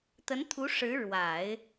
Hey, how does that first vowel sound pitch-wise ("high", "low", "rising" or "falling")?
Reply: rising